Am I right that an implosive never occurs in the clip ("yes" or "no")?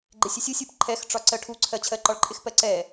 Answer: yes